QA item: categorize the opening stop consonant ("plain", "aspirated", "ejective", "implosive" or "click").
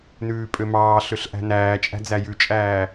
ejective